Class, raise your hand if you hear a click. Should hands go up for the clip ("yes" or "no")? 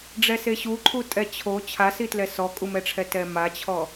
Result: yes